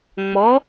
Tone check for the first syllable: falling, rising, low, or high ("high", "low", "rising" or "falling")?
rising